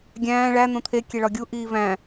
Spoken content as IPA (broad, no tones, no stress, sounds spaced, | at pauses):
ɡʲ æ̃ː ɭ æ n̪ õ t̪ʰ e kʲ e ɭ ɒ ɡʲ u ʔ iː v æ̃